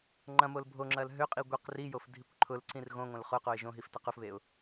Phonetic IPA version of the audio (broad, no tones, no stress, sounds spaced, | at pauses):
ŋ͡ǃ ɐ̃ m o l bʱ o ŋ͡ǁ ɐ l ɦ ø qʼ i ɡʷ e q r i j o f dʱ i kʷ ǃʰ ʊ l ǀ ĩ r ɣ õ ŋʷ ɐ̃ l χ ʊ q o ɪ̯ ʒ õ ɦ i f t ɐ q ʊ f β e ʊ̯